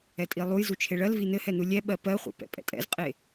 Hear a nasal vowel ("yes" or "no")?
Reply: no